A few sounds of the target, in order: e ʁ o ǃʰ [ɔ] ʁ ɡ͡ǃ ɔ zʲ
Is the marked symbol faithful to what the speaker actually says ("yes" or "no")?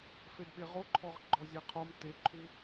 yes